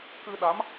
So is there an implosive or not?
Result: yes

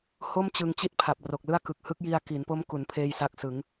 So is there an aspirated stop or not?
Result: yes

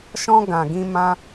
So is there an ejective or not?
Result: no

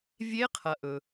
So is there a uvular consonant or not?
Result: yes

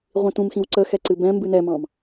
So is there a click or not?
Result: yes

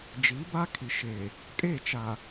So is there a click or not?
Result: no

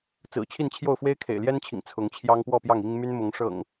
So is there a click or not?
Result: no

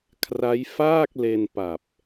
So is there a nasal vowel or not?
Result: no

